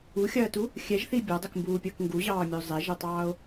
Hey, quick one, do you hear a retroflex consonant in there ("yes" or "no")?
no